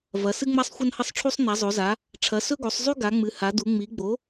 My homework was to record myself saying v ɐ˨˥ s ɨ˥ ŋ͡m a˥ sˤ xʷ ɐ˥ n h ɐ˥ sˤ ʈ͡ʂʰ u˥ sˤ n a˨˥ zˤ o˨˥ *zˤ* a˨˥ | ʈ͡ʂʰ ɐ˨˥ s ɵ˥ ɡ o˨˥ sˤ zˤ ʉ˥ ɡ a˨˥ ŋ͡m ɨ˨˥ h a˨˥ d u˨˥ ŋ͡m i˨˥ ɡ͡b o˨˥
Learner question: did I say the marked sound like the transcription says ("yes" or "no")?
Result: no